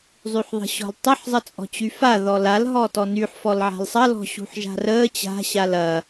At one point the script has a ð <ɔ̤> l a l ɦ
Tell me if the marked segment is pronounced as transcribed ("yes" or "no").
no